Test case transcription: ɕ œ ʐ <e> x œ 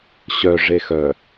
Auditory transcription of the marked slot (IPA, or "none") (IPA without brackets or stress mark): e